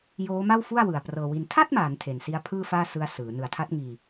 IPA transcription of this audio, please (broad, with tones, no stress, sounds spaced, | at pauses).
j oː˦˥ m a˥˩ w f u˥˩ a̯ w ɯ˨˩ a̯ p r ɤː˧ w i˧ n tʰ a˥˩ t̚ m aː˩˦ n tʰ e˨˩ n s i˦˥ a̯ pʰ ɯː˥˩ f aː˥˩ s ɯ˦˥ a̯ s ɯː˩˦ n ɯ˨˩ a̯ tʰ a˦˥ t̚ ŋ iː˧